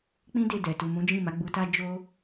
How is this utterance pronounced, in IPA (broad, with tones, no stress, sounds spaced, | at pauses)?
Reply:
k͡p ĩ˦ d e˦˨ d ɛ˨ t u˨ m ũ˨˦ d͡ʒ ĩ˦˨ m a˨˦ ɡ͡b u˧ t a˦ d͡ʒ o˦